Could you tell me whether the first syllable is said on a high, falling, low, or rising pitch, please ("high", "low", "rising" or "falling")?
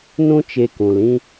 high